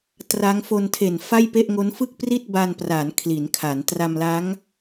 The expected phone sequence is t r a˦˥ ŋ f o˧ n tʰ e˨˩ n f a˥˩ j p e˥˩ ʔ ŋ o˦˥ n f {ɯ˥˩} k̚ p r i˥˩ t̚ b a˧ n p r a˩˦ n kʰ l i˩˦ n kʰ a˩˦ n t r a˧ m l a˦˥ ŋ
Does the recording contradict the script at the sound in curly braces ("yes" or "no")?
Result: no